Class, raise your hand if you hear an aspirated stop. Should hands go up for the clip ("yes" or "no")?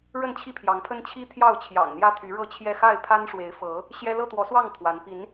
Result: yes